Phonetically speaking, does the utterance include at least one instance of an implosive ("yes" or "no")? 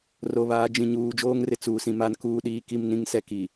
yes